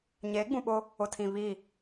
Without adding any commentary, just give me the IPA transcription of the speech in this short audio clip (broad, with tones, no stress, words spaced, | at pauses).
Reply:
ɲeː˨˦ɡ͡bũ˨ɓʊ˦ | ʊ˨tʰĩ˨βi˦˨